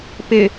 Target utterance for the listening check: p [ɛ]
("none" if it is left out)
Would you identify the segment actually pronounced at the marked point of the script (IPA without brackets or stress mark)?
ɪ